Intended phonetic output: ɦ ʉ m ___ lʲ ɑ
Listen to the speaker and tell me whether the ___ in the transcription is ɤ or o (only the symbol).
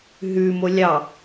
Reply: o